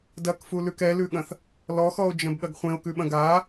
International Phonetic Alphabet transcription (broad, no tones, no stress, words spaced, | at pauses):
dɐkfulʉk ɛlʉɠɐ̃θ | lɔxɔo̯d͡ʒɐ̃bɠɐɡ χʷẽo̯kʉɓɐ̃ ɡa